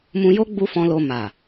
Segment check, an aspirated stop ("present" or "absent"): absent